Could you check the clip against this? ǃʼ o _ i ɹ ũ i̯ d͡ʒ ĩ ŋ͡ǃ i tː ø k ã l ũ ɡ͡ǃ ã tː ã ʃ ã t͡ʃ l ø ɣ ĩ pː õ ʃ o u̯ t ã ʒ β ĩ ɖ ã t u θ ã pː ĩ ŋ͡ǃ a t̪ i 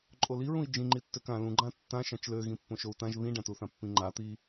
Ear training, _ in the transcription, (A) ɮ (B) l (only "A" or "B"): B